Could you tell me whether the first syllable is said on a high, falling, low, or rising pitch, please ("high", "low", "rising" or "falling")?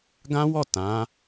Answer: high